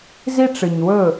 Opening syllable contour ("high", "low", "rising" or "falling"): high